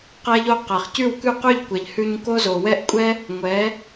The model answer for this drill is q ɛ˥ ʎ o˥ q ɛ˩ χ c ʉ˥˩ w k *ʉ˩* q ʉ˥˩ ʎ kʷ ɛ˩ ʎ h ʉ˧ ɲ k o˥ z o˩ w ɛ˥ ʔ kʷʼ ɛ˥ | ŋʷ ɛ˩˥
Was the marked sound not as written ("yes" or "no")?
yes